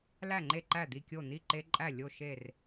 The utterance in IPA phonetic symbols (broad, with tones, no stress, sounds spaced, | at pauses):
l æ˥˩ ŋ͡ǃ e˥˩ ǃ æ˥˩ d̪ i˥˩ kʲ o˥˩ n̪ i˥˩ ǃ e˦ ǃʼ æ˥˩ lʲ o˥˩ ʃ e˥˩ r